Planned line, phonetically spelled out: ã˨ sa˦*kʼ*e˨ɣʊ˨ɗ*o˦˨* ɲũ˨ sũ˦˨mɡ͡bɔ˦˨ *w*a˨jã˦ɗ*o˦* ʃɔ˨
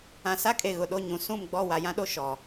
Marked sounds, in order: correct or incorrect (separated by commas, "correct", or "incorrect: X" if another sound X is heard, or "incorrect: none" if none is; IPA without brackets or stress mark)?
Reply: correct, correct, correct, correct